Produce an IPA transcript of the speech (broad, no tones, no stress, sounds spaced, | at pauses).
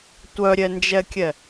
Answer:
tʷ œ ɾʲ ɛ n d͡ʒ ɛ kʲ ɛ